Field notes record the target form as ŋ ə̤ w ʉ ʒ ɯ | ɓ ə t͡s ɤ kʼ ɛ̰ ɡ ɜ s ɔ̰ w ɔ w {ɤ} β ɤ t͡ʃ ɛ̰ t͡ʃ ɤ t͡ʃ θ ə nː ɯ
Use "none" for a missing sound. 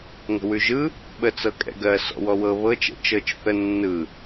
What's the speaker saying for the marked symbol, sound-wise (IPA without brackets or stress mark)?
ɤ